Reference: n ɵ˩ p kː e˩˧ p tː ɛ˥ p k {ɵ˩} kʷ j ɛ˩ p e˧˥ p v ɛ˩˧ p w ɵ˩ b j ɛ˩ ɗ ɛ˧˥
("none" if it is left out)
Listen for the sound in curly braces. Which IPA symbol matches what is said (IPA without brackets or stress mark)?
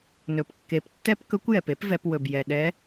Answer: ɵ˧˥